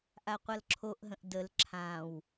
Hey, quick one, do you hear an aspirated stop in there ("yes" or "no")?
yes